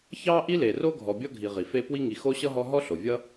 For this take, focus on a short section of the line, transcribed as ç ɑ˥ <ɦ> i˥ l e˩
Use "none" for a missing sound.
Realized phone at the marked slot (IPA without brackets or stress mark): ʔ